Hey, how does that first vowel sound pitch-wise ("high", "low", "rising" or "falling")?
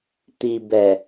low